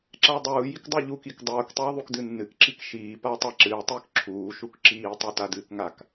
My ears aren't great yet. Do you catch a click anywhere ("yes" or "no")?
yes